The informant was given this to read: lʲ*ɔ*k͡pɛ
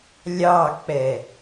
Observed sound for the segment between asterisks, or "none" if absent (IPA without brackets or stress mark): ɑ